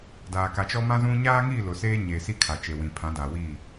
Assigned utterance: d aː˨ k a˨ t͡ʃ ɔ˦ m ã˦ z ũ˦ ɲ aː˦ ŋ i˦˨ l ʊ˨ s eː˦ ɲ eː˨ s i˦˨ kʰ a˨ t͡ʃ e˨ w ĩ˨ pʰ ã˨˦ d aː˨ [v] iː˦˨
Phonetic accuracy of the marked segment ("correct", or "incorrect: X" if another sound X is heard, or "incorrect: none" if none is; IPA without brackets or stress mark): incorrect: w